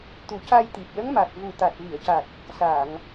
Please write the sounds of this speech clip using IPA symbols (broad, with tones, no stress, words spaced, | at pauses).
t̪u˨˩˦ca˧jt̪i˨˩p̚ lə˧˥ŋma˨˩k̚ vu˨˩t̪a˨˩t̚vi˨˩˨ə̯ca˨˩t̚ | saː˨˩˨ŋ